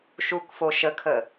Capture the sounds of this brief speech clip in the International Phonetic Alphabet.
ʃ u k f o ʃ ə kʰ ə

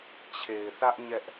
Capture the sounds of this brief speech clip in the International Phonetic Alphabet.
t͡ɕʰ e˨ ɪ̯ θ ä˦ ʔ ɲ ɛ˦ ʔ

